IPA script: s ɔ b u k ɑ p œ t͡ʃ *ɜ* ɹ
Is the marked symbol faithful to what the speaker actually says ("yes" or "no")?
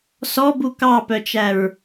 no